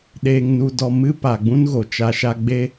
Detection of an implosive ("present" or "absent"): present